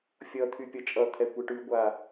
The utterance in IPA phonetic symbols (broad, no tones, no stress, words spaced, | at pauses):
fʲʌt̪ʰy pʲʌt͡ʃʼʌt̪ʰɛ kʷɛʈʉɡʷa